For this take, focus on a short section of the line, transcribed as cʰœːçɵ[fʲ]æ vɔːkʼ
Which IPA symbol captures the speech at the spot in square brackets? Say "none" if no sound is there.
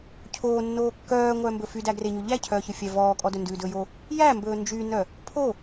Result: fʲ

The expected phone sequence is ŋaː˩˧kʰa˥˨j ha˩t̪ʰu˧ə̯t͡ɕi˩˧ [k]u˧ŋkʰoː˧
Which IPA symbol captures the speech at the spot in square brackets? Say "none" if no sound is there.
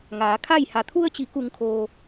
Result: k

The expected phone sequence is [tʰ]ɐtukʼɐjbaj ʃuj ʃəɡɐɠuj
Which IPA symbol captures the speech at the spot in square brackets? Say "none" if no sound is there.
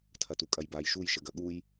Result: tʰ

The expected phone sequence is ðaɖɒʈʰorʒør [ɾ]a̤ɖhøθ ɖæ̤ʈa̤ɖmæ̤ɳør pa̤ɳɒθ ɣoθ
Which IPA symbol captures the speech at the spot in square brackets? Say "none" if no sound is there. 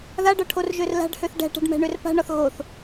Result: l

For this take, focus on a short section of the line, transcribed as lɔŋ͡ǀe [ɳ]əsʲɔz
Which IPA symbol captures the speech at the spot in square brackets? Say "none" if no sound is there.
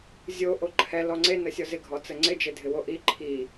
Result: n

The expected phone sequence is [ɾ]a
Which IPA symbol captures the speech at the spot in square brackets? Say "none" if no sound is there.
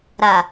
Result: ɾ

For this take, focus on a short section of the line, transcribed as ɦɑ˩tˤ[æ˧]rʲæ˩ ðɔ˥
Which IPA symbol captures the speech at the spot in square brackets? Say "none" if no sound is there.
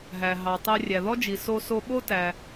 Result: æ˧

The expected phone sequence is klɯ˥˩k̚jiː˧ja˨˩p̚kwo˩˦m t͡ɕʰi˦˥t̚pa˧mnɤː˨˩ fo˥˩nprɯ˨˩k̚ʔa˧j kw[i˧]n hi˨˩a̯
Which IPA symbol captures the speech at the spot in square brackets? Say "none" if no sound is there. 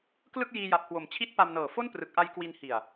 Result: i˧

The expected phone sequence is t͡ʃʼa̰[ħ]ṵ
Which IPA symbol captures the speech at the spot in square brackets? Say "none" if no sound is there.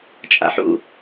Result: ħ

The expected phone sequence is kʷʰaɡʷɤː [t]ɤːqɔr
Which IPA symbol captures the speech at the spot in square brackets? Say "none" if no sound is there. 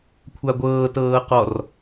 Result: t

